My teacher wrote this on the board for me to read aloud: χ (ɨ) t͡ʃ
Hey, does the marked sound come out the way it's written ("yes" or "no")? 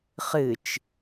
yes